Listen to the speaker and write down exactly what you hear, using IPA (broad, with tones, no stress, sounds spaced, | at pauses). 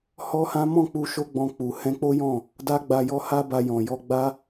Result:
h ɔ˦ h ã˦ m ɔ̃˦˨ k͡p u˧ ʃ o˦ ɡ͡b ɔ̃˧ k͡p u˨ h ɛ̃˧ k͡p o˦ j ɔ̃˦˨ | d a˦ ɡ͡b a˧ j ɔ˦ h a˦ b a˧ j ɔ̃˨ j ɔ˧ ɡ͡b a˦